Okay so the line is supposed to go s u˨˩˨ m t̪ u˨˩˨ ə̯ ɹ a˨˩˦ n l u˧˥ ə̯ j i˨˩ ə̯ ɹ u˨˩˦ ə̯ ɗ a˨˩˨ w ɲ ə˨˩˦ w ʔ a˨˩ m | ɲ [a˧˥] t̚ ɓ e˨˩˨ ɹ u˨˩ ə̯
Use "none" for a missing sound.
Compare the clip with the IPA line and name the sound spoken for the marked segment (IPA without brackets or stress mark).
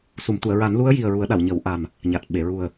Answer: a˨˩